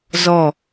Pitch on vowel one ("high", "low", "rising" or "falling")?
falling